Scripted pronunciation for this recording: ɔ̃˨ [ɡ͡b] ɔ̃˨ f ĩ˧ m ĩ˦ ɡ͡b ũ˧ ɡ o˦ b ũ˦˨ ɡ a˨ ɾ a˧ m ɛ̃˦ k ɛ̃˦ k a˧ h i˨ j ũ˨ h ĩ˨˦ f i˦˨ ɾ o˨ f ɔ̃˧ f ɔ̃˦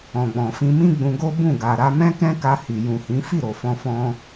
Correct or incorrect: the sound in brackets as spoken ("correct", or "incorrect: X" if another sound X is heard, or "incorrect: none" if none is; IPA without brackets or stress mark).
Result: correct